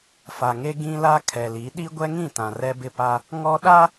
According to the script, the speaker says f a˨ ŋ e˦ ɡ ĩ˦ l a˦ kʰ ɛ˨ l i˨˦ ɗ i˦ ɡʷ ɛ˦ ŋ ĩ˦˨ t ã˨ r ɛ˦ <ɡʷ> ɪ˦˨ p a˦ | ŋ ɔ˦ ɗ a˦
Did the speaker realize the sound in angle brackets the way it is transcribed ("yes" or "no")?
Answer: no